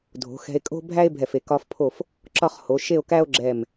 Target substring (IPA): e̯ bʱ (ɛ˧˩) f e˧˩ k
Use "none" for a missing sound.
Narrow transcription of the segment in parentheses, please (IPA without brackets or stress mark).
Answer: ɛ˧˩